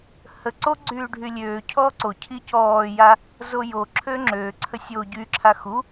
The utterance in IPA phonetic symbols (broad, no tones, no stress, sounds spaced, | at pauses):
h ə ǀ o ɡ͡ǀ yː ɖʱ y lʲ øː cʰ ɔː ǀ o cʰ i c ɔː j a | z o j o ǁʰ øː ŋ͡ǁ øː ǀʰ ə sʲ o ɟ y ǁʰ a x u